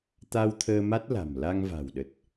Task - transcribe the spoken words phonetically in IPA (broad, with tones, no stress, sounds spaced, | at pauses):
t̪ a˧ w t̪ʰ əː˧ m a˦˥ t̚ l a̤˨˩ m l a˧ ŋ v a̤˨˩ w ɗ ə˨˩ t̚